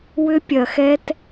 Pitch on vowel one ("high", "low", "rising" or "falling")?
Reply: high